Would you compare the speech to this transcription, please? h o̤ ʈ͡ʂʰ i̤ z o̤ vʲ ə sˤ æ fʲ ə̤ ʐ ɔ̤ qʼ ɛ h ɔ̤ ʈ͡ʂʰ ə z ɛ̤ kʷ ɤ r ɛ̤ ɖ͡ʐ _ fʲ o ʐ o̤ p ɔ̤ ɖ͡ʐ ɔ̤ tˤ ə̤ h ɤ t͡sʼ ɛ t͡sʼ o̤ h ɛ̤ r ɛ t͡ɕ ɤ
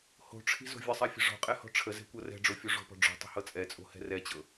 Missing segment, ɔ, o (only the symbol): o